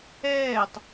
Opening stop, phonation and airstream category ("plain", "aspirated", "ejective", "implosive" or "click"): plain